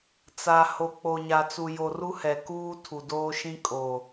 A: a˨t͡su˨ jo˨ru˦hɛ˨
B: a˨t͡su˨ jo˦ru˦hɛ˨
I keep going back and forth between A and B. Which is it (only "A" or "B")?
A